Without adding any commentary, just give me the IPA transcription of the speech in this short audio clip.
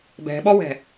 bɛ̤ɓɔwɛ̤

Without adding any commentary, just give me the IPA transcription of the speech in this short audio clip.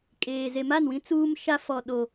kʼeː˨ ze˨ma˦˨nwĩ˦ t͡suː˦mʃa˦ fɔ˨ɗo˨

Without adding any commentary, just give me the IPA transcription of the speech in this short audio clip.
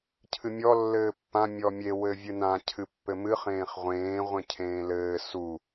cʰɨmʲɔ lːɘːpːã mʲɔmʲe wɘvʲɨnã cʰɨpːɘmɨχ ẽːχʁʷẽː ʁʷẽcʰẽːlɘː su

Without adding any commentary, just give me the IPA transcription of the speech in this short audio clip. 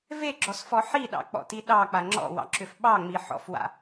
veɡ͡ǁɔsfɔ ħiɗɑ̰k͡pɔ̰ti ɗɑk͡pa ŋ͡ǁɔ̰wɑ̰ǁʏf ɓɑŋ͡miħɔ̰fwa̰

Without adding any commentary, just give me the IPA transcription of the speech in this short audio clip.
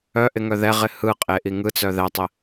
œʔɪŋœ ðɛʁɪ hɯqʼeʔi ŋɯt͡sœ ðɛtˤɪ

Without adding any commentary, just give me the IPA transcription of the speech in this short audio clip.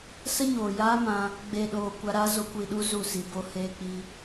sə˦ɲoː˨jaː˦ mã˧ | ɡ͡beː˨ɗoː˨ kʷa˧ɾaː˦ zo˧kʷi˨ɗu˧ zu˦˨si˧bo˦ heː˧k͡pi˧

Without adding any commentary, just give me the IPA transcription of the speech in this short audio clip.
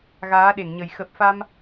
ɣaː˨˦ɗe˧˩ŋɲə˨˩j xə˨˩p̚fa˧m

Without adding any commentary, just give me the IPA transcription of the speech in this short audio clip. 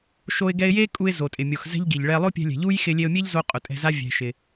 ʃo˧ɪ̯ɡɛ˧ɪ̯je˦kʼu˧ɪ̯ zo˨tʼɪ˨mʲo˨x zɛ̤˦ʎɡi˨ʎ ɭɛ˧ lˠo˦pʲɛ̤˧lʲɛ̤˨ ʎu˦j xɪ˧lʲe˧ʊ̯mʲe˦ʎzo˧ qʼʊ˨tʼɛ̤˧za˦ vʲɛ̤˧ʃɪ˧

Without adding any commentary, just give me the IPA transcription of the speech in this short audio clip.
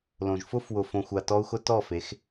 lõ˨ʒfʊ˦f wʊ˨fõ˨xʷa˨ tɔ˦u̯ xʊ˦tɔ˦˨fe˨˦x

